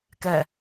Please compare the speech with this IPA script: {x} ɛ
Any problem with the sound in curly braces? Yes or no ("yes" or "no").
yes